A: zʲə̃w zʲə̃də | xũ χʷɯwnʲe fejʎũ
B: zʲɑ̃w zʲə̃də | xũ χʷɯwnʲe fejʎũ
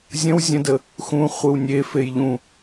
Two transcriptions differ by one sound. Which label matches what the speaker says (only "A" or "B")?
A